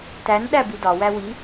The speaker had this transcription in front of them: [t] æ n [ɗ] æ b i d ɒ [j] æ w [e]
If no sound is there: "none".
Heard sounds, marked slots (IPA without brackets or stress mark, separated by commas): t, ɗ, w, i